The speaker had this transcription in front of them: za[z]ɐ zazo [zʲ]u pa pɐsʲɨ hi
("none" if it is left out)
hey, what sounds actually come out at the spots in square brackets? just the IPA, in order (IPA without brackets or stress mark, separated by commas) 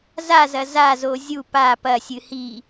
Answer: z, zʲ